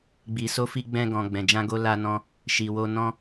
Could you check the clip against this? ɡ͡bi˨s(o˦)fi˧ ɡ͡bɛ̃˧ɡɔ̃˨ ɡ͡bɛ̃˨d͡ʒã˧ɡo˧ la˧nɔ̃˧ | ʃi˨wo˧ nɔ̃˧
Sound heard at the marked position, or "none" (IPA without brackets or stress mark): o˧